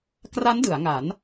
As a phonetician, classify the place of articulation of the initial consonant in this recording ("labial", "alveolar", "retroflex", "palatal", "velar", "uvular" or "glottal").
velar